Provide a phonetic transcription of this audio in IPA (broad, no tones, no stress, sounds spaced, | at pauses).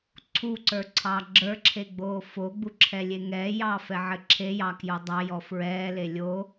ǀʰ u ǀ ə˞ ǀʰ ɑ ɡ͡ǁ ə˞ ǁʰ e ɡ͡b oː f o ɡ͡b u ǁʰ ɛ lʲ e ŋ ɛː j ɑː f ɛ ʕ ɘ ǁʰ e j ɑ k j o dˤ ɑ j ɔ f ɹ ɛː l e lʲ o